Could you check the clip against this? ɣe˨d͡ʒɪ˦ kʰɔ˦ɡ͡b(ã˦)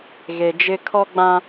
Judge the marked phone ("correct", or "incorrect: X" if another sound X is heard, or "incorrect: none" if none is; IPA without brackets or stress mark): correct